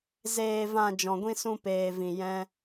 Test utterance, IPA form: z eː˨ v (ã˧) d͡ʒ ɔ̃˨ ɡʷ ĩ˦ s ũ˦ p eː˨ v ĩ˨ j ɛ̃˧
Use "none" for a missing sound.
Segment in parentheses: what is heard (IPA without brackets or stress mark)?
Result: ã˨